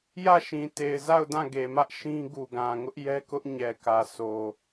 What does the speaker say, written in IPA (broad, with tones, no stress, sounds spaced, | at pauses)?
j ä˦˨ ʃ ĩ˨ t e˨ ɪ̯ z a˦˨ ʊ̯ d ã˦˨ ɡ e˨ m ä˦ ʔ ʃ ĩ˦ ɡ u˨ ɡ ã˨ ŋ ʊ˦ ʔ j ɛ˦ k ʊ˦ ʔ ɲ ɛ˨ k ä˨ sʰ o˨